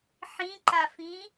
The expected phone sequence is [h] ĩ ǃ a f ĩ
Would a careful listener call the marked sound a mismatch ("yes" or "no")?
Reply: yes